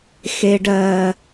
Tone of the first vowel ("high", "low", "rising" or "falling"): low